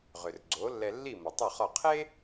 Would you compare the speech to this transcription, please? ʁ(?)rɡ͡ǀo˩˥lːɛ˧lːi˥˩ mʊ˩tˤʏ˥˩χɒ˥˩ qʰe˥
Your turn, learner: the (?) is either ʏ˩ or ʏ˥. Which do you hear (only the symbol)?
ʏ˩